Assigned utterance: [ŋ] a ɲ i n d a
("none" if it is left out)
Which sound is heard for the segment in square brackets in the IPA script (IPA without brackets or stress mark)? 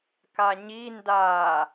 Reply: k